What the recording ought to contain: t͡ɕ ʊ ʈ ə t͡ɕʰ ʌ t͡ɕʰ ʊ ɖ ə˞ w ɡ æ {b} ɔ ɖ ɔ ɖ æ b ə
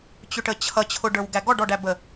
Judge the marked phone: incorrect: ɡ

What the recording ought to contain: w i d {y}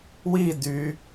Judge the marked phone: correct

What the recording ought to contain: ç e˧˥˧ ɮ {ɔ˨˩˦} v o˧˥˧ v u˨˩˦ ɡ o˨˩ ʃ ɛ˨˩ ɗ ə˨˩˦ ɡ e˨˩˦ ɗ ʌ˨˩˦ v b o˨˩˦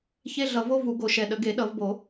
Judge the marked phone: incorrect: ʌ˨˩˦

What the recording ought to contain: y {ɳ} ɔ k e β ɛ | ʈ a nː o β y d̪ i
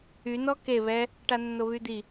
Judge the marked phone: incorrect: n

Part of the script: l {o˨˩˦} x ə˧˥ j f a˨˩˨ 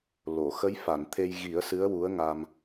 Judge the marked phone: incorrect: o˨˩˨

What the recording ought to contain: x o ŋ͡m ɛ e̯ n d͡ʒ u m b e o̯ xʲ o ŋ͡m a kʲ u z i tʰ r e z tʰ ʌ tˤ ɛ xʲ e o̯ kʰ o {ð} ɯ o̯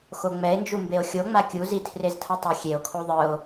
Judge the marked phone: incorrect: ðˤ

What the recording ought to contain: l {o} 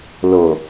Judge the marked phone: correct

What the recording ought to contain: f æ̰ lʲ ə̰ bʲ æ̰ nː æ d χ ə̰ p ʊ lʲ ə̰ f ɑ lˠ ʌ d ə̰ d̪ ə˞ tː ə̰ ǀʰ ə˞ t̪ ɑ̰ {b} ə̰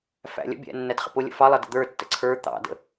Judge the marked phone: incorrect: d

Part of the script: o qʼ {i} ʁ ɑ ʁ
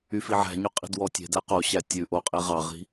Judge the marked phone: incorrect: e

